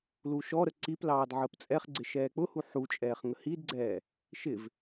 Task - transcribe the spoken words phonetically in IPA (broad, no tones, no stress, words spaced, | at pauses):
luʃɔɾə ǀiplɑːd ʕəːpt͡sʼɛχɡ͡ǀɪ ʃɛːk͡pʊhu ħut͡ʃʼɛːχ ŋəhidɡ͡ǀɛː | ʃɪv